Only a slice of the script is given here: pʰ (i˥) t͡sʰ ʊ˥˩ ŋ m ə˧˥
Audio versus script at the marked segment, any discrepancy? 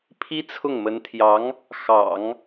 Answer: no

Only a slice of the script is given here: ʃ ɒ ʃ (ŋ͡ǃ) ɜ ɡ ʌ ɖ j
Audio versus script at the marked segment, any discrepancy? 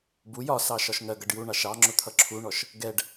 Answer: yes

